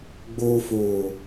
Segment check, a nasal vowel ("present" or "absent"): absent